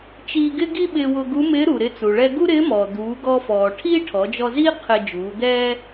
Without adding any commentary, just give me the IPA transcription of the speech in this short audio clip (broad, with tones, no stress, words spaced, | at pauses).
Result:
t͡ʃiː˧ɡɪ˥ ɡi˥ɓɪː˧ wʊ˧ɡu˧˥ mɪː˧˥ɾu˩ɾɪ˧t͡su˩ ɭɛ˧ɡu˥ɾɪː˧˥mɔː˩ d̪uː˩˧ɡɔ˧fɔː˩ ʈʰiː˥ʈʰɔ˩˧d͡ʒɔ˧ziː˥ qʰɪ˧ d͡ʒuː˩˧d̪ɛː˥